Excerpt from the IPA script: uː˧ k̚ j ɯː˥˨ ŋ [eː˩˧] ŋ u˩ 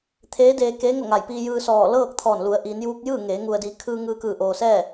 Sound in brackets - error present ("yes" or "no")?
no